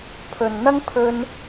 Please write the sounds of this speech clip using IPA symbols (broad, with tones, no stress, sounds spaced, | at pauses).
pʰ ɵ˧ n n̪ ɐ˥ ŋ pʰ ɵ˥ n